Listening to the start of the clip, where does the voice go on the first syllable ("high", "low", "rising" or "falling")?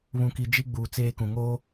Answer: low